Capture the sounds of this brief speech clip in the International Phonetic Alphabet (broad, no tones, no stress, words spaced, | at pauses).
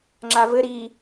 ŋ͡ǁavɘ ɾi